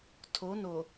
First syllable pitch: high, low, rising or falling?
rising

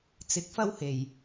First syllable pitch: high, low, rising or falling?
rising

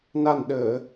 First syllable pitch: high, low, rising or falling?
low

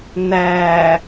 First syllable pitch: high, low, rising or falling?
low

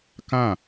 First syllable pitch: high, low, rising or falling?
falling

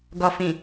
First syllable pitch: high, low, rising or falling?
low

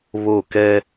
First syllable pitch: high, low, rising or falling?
falling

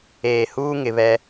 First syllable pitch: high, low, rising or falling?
low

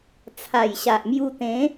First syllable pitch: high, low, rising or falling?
low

